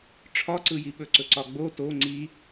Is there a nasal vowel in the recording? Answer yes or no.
no